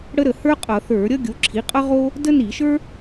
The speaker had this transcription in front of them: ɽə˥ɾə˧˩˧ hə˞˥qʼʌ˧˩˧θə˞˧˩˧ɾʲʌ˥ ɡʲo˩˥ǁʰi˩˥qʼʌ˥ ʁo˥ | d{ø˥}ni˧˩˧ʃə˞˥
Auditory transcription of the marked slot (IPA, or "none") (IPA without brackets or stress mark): ə˥